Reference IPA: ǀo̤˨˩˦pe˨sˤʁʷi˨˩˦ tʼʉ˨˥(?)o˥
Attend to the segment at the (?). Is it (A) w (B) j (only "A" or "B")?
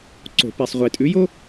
B